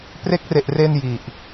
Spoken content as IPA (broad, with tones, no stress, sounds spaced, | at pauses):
p r e˦˥ k̚ r e˨˩ ʔ r e˧ n j i˨˩ ʔ